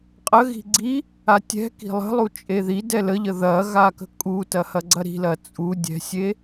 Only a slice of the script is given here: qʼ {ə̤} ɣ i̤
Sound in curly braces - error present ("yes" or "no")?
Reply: yes